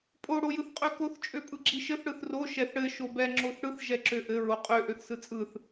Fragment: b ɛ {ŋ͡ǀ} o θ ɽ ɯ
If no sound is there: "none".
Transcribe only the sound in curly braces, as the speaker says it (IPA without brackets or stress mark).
ŋ͡ǁ